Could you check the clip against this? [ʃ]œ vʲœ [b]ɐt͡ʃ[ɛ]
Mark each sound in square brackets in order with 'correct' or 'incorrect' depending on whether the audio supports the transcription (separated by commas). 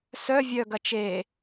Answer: incorrect, incorrect, incorrect